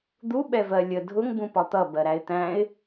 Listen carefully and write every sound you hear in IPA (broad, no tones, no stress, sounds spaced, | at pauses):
d̪ u ɓ ɛ v ɜ lʲ ə dʱ ʊ ŋ b ũ p ɒ t̪ ʌ b ɜ ɾ æ ɪ̯ t̪ æ̃ ɪ̯